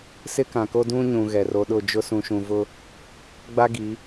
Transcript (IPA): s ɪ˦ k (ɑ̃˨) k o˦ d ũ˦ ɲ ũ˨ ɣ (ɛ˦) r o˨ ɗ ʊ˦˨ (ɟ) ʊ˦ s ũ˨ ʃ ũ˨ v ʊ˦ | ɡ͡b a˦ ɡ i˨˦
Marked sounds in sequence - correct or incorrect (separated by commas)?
incorrect, incorrect, incorrect